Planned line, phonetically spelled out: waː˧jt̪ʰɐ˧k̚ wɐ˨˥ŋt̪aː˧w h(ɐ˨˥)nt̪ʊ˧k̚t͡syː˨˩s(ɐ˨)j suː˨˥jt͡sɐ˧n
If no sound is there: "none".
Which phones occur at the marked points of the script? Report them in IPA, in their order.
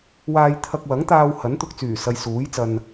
ɐ˨˥, ɐ˨

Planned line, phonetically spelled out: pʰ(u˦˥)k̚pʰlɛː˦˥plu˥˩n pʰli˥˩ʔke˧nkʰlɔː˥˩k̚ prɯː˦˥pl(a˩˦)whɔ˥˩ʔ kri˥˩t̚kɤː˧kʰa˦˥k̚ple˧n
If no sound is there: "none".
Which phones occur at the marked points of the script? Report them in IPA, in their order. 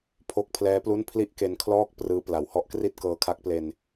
o˦˥, a˩˦

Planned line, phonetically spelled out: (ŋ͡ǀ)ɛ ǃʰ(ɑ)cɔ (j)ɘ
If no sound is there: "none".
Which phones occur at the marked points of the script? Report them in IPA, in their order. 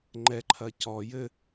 ŋ͡ǃ, ɐ, j

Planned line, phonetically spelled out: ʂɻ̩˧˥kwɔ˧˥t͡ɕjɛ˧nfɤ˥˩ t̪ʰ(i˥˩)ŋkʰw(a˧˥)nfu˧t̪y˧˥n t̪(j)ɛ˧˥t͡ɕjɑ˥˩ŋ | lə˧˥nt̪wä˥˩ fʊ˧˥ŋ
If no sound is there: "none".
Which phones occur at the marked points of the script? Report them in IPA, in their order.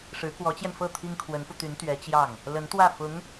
i˥, ə˧˥, ɥ

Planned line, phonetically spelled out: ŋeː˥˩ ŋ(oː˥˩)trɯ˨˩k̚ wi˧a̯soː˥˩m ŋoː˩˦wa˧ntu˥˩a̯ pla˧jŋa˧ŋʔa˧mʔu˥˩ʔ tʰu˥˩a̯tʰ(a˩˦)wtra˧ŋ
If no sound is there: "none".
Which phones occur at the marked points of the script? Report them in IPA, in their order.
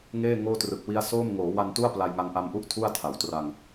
oː˥˩, a˩˦

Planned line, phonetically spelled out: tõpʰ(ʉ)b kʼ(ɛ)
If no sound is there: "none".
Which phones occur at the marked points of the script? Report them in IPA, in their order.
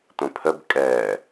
ə, ɛ

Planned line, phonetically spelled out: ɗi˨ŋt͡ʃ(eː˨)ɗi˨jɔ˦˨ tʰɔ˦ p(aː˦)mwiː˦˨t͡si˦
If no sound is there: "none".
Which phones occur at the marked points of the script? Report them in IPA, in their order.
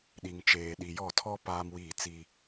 eː˨, aː˦

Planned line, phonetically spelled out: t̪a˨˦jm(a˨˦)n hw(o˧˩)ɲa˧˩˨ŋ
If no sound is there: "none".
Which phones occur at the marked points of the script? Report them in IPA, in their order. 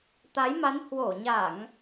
a˨˦, o˧˩

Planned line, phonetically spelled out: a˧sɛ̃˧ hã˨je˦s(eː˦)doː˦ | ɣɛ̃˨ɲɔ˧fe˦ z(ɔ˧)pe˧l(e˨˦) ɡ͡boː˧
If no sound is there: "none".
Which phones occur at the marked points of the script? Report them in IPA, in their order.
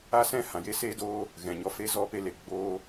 eː˦, ɔ˧, e˨

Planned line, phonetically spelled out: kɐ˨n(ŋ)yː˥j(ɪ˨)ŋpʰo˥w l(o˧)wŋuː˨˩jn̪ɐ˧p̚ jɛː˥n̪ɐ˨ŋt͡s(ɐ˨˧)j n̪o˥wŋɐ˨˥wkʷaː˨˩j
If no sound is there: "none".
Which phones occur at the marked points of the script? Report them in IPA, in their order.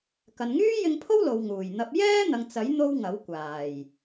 ŋ, ɪ˧, o˨, ɐ˨˥

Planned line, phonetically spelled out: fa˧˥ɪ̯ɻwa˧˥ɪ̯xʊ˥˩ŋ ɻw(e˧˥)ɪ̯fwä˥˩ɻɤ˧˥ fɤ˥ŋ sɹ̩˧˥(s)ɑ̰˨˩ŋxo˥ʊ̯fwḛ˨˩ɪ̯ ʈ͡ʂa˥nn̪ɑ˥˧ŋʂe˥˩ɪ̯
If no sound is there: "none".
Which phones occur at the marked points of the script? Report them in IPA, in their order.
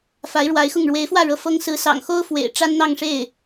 e˧˥, s

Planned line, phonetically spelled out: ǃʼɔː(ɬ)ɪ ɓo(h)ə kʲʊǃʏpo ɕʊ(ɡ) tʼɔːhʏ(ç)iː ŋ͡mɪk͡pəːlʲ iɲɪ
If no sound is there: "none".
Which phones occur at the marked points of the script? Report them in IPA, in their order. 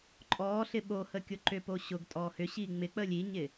ɬ, h, ɡ, ɕ

